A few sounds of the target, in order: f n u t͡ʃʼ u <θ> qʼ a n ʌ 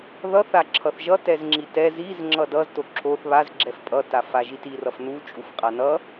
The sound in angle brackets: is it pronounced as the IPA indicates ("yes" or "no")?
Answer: no